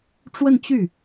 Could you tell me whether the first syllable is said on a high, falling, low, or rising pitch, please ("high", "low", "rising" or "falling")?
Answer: falling